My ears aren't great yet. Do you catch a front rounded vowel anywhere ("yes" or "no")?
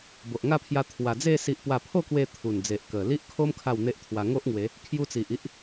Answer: no